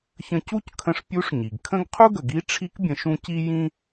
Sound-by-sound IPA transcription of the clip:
çə̃˧ cu˥ckʰə̃˧ʂ pʲu˧˥ʂɲi˩ɡkʰə̃˥ɡ qʰu˥ɡə˩ɡi˧˥ ʈ͡ʂʰi˧˥kbʲə̃˩˧ʃũ˧ ci˥jĩ˥

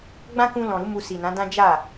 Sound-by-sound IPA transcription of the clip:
ɡ͡bã˦kũ˧lɔ̃˨ɾu˨˦ mu˧si˨nã˨˦dã˦ d͡ʒa˦˨

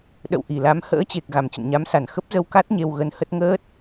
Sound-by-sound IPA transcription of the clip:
ɗə̰˧˨wʔi˧˩la˨˦m hə̰ː˧˥t͡ɕe˨˩k̚ ɣa˧˩mt͡ɕə̰˧˨nɲa˨˦msa˧˩n xə˦˥p̚zə˧wka˦˥t̚ ɲe˧wɣə˧nhə˦˥t̚ ŋəː˦˥t̚

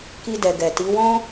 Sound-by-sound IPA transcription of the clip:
ki˧dɛ˨ ɡɛ˨ti˨˦wɔ̃˦

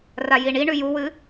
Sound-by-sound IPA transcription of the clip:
rajiɳiɳʉ juwɨ

